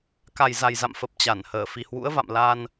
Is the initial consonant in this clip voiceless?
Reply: yes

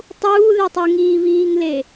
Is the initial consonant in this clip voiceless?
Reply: yes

